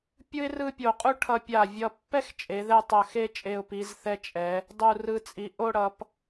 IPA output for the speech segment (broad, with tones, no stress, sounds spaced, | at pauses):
pʲ ɯ˥ ɪ̯ r ɯ˥˧ pʲ o˧˩ qʼ u˥ ʈʰ ʌ˧ pʲ a˧˩ vʲ ʌ˧ pː ɛ˥ x t͡ʃʼ e˩˧ ð ɛ˥˧ tˤ ʌ˧˩ x e˥˧ t͡ʃʼ e˧˩ ʊ̯ p i˩˧ z θ ɛ˧ t͡ʃʼ ɛ˩˧ | dˤ u˧˩ r ɯ˧˩ t͡sʼ i˩˧ ʔ o˥˧ ɽ ʌ˩˧ p